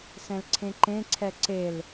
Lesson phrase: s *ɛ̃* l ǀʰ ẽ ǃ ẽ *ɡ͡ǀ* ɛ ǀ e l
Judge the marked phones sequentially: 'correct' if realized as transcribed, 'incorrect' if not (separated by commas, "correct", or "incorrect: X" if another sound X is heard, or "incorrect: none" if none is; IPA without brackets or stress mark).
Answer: correct, incorrect: ǀʰ